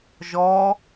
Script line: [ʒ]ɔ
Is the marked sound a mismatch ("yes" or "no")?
no